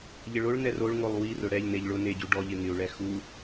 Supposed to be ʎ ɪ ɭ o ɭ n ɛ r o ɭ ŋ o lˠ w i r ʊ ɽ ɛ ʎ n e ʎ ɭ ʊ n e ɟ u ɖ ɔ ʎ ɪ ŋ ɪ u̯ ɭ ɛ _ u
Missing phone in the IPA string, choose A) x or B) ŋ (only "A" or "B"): A